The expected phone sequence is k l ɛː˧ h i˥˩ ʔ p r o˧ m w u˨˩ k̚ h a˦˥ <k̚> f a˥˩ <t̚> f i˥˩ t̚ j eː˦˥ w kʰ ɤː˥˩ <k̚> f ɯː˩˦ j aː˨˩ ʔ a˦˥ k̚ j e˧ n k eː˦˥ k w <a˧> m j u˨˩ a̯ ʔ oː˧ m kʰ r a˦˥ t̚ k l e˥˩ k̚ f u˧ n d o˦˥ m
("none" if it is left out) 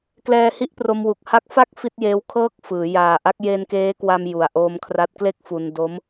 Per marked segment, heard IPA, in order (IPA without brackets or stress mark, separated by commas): k̚, k̚, k̚, a˧